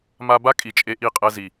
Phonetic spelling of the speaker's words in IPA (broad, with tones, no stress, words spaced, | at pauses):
ma˦ ba˦ kʼi˨t͡ʃʼe˦ʔi˦˨qʼɛ˦ zi˨